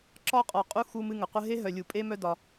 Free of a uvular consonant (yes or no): no